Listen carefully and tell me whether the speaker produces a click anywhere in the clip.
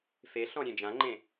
yes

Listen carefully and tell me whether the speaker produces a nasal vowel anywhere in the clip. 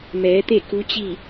no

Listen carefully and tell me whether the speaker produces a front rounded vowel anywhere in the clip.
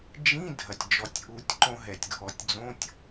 no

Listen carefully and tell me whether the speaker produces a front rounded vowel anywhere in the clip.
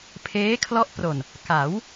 no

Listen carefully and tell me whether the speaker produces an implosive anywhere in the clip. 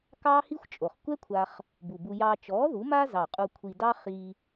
no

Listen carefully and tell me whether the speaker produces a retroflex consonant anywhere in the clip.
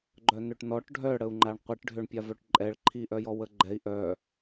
yes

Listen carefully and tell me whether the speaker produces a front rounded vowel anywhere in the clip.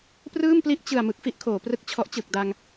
no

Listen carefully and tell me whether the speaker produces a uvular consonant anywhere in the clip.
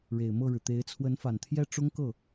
no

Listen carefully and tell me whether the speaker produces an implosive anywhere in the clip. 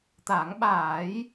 yes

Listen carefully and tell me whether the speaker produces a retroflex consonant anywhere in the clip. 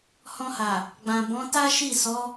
no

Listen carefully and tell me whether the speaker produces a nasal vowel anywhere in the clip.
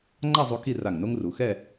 no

